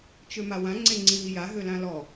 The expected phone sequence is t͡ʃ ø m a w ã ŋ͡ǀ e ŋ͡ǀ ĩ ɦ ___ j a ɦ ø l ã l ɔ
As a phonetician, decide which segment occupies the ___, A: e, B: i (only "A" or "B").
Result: B